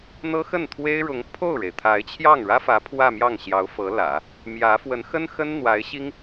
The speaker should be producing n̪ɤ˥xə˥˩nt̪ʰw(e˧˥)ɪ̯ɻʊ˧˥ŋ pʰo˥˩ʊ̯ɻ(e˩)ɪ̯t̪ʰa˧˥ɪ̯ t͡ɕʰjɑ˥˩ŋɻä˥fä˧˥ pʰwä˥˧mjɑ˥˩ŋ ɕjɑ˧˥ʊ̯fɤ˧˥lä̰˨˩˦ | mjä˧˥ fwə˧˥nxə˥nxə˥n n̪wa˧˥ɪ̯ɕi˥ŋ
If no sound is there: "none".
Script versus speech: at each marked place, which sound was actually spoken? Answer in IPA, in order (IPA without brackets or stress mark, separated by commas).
e˥, e˩